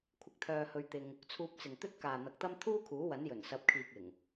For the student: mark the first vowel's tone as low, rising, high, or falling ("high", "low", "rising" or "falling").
high